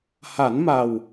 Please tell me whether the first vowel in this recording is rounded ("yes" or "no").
no